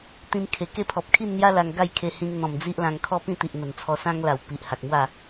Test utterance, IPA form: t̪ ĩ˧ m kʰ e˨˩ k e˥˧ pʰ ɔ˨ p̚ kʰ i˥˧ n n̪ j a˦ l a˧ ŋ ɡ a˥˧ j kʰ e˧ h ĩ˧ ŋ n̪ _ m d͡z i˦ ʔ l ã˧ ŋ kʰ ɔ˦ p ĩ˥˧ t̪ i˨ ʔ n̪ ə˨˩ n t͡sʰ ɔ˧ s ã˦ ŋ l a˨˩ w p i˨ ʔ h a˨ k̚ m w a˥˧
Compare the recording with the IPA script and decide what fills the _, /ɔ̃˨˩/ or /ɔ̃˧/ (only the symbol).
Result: ɔ̃˨˩